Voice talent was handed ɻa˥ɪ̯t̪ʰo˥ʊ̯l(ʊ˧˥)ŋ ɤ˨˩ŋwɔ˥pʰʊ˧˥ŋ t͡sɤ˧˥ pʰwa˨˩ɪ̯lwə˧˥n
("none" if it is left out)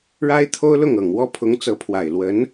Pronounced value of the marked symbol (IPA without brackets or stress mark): ʊ˥˩